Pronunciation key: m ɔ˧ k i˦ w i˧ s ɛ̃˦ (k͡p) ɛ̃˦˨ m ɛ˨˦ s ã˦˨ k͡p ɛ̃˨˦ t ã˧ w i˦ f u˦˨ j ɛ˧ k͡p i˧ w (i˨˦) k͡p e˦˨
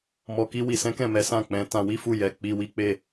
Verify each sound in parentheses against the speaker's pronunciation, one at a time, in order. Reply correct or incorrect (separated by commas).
incorrect, incorrect